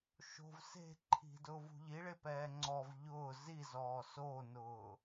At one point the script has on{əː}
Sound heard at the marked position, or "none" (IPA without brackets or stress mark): ʊː